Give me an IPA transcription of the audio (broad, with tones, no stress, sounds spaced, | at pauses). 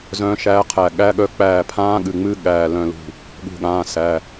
z œ̃ː˧˥ ʃ æː˧˥ qʰ æ˧˩ ɠ æ˧˥ ɠ œ˧˥ k͡p æː˧˩ pʰ ãː˧˥ ɠ ɨ˩˧˩ ŋ͡m ɨ˧˥ ɠ æː˧˩ l œ̃˧˩ l ṳ˧˩ | ɠ ṳ˧˩ ɠ ãː˩˧˩ s æ˩˧˩